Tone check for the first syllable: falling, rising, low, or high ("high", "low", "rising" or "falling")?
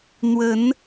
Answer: rising